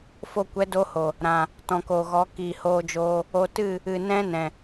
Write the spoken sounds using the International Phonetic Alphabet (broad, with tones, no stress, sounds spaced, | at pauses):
f o˧ kʷ ɛ˨˦ d o˦ h o˨ | ɾ ã˨ | t ɔ̃˨ k oː˨ ɣ ɔ˨˦ k iː˨ h oː˧ d͡ʒ oː˧ | o˧ t ɨ˦˨ | ɨ˨ n ɛ̃˦ n ɛ̃˨